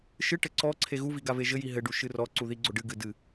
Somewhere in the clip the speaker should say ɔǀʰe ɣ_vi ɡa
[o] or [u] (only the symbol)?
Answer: u